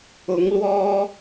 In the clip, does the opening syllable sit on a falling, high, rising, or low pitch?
rising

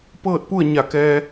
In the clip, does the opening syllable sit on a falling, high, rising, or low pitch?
falling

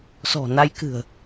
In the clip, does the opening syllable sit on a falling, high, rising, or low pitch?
low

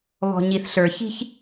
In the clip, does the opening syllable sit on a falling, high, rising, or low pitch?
low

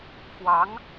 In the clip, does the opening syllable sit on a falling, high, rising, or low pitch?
rising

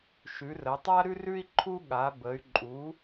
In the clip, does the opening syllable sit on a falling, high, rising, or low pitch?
rising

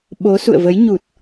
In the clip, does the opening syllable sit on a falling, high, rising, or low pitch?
rising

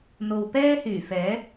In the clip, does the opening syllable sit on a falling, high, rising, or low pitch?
low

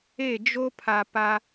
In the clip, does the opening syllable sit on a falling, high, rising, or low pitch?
falling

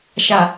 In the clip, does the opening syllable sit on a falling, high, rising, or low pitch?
low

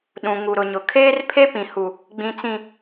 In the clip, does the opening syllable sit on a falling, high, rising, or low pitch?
low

